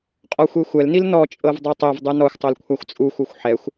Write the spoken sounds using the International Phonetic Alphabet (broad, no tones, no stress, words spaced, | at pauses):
qʼɔxʷexʷɛlnil nɔt͡ʃʼɤv dˤotˤevdˤɯ nɔxʷtˤol kʷʰaxʷt͡sʼuxʷɤxʷ ħɛxʷ